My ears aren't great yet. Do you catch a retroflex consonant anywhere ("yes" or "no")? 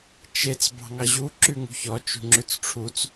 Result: yes